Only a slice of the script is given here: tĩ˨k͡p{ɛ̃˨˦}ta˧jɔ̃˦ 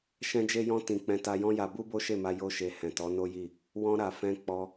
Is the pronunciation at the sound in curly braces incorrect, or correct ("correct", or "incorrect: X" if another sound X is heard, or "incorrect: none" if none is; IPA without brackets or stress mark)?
correct